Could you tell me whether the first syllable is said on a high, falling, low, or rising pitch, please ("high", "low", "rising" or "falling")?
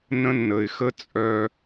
high